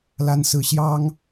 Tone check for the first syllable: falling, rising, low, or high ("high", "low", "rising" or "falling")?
high